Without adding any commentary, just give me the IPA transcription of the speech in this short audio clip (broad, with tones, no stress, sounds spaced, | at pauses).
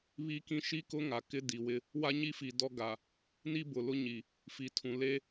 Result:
β i˦ k ĩ˦ ʃ i˦ k ʊ˦ ŋ a˨ k ɪ˦ d i˨ w ɪ˦ | w a˦ ɲ i˦ f i˨ d ɔ˦ ɡ a˨ | n i˦ b ʊ˨ l ʊ˦ ɲ i˨ | f i˨ tʰ ũ˨ l e˦